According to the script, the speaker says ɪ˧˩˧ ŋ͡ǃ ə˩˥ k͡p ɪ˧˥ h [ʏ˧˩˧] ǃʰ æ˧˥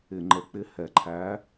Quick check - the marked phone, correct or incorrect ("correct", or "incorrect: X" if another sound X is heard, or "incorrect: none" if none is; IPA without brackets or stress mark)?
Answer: incorrect: ɛ˧˩˧